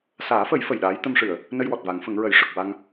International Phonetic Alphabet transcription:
s aː˨˩˦ f ə˨˩˦ j f ə˨˩ j ɗ aː˧˥ j t̪ ə˧ m ʂ ɨ˨˩˨ ə̯ | n ə˧ j w ɔ˨˩ t̚ v a˨˩˦ ŋ f ə˨˩˦ ŋ ɹ ə˨˩˦ j ʂ ə˨˩ k̚ w a˧ ŋ

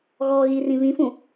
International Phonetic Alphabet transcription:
ɣ ɔ ɣ i r ĩ β ĩ f ũ

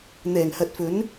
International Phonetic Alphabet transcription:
n̪ ɛː˨˩ ŋ h ɐ˨ t̚ f ɵ˨˥ n

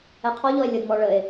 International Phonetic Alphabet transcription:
ɛ qʰ ɔ ʎ ɔ e̯ lʲ ə d m ɔ ɭ ə e̯

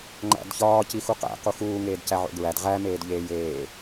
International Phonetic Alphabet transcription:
ŋ͡ǃ æ̰ d ç ɒː c i x u q æ̰ q u x uː ŋ eː d c æ ʕ o̰ ɡ ɹ æ d ʁ æ m eː d ʎ eː j eː

